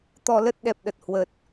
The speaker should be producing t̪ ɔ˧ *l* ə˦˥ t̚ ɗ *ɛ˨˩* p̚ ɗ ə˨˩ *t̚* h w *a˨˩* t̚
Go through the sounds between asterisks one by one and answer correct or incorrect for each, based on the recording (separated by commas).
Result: correct, correct, correct, incorrect